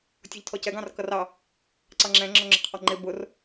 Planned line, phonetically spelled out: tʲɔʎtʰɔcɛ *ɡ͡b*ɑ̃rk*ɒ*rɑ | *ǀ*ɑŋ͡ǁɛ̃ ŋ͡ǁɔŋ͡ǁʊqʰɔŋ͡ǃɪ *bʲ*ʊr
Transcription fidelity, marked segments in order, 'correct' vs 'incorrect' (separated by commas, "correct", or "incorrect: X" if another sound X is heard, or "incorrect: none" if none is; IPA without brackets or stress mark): incorrect: ɡ, incorrect: ʌ, correct, incorrect: b